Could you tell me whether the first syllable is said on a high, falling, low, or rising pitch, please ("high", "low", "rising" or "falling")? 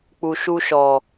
low